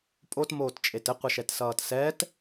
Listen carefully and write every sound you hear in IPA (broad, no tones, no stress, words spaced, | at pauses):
pʼotmoːtt͡ʃʼet ɘqʷʌʃɛtsʌːt sɛt